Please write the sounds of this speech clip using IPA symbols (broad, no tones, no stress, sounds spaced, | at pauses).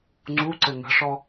ŋ͡ǀ u ǀ ɘ ŋ ə̤ ʂ ɔ